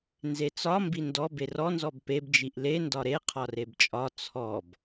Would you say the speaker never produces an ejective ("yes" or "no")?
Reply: no